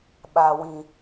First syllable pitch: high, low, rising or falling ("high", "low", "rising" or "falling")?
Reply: high